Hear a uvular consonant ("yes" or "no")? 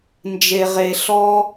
yes